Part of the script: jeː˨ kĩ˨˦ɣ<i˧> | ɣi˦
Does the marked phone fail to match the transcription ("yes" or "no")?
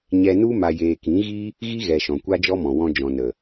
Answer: yes